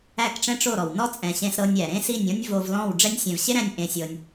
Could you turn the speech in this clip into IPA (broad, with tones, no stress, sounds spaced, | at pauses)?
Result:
æ˦˨ k ʈ͡ʂ ɛ̃˦ ʈ͡ʂ o˦˨ ɾ ɔ˨ w n ɔ˦ t͡sʼ ɛ̃˨ ɕ ẽ˧ s ɾ ɤ˧ nʲ æ˨ ɾ ẽ˦ s i˦˨ nʲ ɔ̃˦ nʲ v o˧ v l ɔ̃˦˨ w ɖ͡ʐ ɛ˧ nʲ sʲ ɛ̃˨ v ɕ e˦ ɾ æ̃˧ nʲ ʔ ẽ˧ sʲ ɤ˧ nʲ